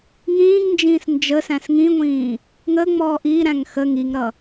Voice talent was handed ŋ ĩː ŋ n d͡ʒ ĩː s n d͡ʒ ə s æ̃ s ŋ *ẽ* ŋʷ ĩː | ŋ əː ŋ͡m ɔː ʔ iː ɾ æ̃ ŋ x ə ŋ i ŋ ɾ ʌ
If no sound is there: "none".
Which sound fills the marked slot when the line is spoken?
ĩ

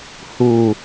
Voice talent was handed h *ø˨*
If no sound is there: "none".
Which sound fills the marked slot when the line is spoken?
u˨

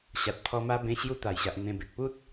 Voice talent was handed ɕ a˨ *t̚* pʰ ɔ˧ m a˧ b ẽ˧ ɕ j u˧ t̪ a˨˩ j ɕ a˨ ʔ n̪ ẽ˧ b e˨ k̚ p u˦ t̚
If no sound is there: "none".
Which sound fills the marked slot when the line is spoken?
t̚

